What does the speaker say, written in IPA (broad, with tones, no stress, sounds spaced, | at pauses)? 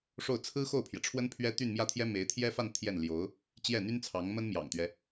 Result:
ʂ o˥˩ ʊ̯ t͡sʰ ɹ̩˥ x o˥˩ ʊ̯ pʰ j ɛ˩ ʈ͡ʂʰ w ə˥ n pʰ ɥ ɛ˥ t̪ y˥˧ n m j ä˥˩ t̪ʰ j ɛ˥ m e˧˥ ɪ̯ t̪ʰ j ɛ˥ f a˥˧ n t̪ʰ j ɛ˥˩ n l j o˧˥ ʊ̯ | t͡ɕ j ɛ˥˩ n̪ y˥ n t͡sʰ ɑ˧˥ ŋ m ə˥ n m j ɑ̰˨˩ ŋ t̪ ɥ ɛ˦